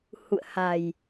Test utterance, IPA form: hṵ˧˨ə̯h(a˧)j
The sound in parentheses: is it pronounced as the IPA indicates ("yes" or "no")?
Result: no